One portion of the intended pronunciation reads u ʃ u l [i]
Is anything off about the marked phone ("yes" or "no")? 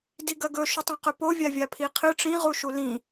yes